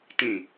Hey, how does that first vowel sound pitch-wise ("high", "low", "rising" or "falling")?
low